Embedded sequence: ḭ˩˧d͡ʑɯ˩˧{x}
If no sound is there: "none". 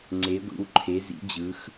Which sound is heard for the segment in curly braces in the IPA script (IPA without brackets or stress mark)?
x